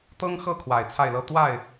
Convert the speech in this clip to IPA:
t̪ ɤ˥ ŋ x ɤ˥˩ kʰ w a˨˩ ɪ̯ t͡sʰ a˥˩ ɪ̯ l ɤ˥ t̪ w a˥˩ ɪ̯

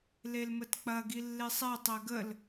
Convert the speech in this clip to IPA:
l e l m ə t k͡p ɐ ɡ i lː e sˤ ɛ tˤ ɛ ɡ ə l

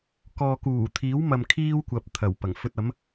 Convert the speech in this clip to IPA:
k ɔː˨ k uː˨˩ t̪ʰ iː˨˥ w m ɐ˨ m kʰ iː˥ w kʷ ɐ˨ p̚ t̪ʰ ɐ˨˩ w p ɐ˨˩ ŋ f ɵ˧ t̚ ɐ˨˥ m

